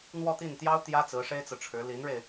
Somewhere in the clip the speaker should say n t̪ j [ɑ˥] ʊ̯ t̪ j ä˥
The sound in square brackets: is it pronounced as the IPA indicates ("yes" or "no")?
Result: yes